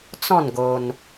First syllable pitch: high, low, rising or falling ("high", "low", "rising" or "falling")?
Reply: falling